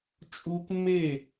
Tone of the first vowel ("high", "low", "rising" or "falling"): high